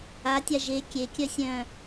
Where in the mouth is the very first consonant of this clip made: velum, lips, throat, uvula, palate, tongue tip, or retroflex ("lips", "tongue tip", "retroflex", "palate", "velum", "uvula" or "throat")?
tongue tip